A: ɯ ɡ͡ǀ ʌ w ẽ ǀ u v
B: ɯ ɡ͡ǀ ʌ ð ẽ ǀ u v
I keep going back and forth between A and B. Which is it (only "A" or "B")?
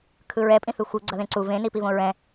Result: B